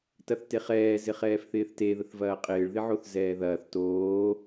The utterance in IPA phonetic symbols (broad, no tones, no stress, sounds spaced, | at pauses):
t ɐ θ t e χ ɛː z ɪ χ ɛː f θ ɪː θ t e ð ə θ v ɐː qʼ ɪː ɭ ð ɪ ʕ o θ z ɛː ð ɐː θ t oː